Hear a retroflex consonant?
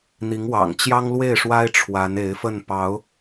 yes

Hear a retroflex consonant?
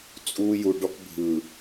yes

